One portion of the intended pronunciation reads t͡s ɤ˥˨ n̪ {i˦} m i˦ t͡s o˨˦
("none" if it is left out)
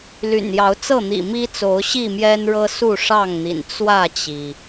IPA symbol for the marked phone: ḭ˨˩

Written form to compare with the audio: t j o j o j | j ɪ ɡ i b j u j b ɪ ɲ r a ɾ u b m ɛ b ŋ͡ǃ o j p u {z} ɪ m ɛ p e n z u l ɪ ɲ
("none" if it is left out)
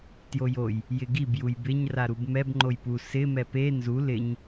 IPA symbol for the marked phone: s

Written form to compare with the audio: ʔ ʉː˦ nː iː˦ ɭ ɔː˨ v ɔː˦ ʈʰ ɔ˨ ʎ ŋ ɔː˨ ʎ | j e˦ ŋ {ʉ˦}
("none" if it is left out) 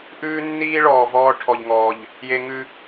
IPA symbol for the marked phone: ʉ˦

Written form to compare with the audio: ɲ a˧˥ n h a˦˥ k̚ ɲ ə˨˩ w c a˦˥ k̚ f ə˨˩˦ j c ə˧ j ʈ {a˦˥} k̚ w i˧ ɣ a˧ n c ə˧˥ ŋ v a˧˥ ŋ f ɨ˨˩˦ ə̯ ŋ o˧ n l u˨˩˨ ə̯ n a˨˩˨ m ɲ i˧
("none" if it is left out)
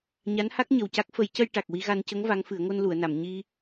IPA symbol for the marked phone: a˨˩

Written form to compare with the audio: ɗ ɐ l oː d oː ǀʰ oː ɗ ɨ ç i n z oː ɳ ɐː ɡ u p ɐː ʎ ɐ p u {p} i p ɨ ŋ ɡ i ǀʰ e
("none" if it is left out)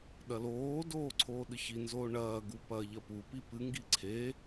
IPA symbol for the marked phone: p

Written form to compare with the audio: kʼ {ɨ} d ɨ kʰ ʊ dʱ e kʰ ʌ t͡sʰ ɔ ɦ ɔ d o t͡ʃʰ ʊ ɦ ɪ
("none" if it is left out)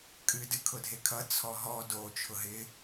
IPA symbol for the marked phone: ɨ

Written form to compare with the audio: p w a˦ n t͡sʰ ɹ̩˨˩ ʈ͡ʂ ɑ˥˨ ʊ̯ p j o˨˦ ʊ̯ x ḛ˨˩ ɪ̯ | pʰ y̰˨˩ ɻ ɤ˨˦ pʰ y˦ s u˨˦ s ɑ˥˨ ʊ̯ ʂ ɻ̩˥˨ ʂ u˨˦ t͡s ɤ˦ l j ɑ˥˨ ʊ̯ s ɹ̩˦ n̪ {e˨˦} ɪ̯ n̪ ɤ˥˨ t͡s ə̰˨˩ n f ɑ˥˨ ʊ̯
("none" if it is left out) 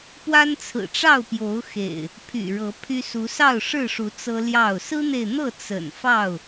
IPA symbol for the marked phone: e˨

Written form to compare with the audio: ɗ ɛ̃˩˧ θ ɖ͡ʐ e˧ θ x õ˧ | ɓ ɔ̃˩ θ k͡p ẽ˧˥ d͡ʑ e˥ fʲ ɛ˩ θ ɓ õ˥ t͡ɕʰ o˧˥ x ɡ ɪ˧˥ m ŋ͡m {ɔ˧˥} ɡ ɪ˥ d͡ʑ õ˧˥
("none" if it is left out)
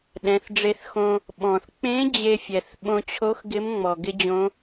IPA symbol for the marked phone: ɔ˩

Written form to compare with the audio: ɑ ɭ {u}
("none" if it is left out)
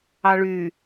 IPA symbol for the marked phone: y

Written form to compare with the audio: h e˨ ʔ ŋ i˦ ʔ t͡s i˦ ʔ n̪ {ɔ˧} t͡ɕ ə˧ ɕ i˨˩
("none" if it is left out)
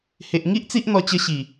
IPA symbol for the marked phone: ɔ˧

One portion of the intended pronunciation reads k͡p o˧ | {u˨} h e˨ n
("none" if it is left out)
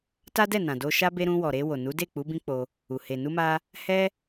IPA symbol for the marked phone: u˨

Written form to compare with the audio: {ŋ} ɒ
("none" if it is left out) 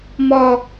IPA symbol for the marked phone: m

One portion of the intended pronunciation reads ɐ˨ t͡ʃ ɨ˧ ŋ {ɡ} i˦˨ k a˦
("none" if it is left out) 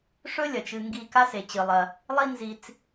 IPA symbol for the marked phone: ɡ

